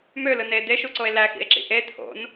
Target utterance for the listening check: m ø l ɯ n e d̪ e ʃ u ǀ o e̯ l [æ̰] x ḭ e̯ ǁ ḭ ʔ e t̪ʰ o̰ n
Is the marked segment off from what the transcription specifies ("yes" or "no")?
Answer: yes